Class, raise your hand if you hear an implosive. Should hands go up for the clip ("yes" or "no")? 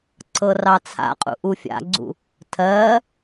no